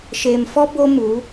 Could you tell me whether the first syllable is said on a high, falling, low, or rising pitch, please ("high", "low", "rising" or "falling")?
low